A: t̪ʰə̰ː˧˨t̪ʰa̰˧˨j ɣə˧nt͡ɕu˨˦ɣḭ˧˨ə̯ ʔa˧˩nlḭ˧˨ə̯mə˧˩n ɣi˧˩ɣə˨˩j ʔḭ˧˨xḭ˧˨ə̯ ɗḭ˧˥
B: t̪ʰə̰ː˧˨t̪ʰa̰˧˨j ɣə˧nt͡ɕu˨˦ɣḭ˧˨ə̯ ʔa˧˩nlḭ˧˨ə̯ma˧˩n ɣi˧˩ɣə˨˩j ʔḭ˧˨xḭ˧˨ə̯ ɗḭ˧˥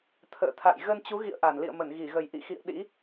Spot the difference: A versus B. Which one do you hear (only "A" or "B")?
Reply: A